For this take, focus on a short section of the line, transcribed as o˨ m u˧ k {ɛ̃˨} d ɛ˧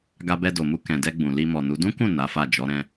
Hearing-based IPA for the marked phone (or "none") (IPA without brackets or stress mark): ɛ̃˨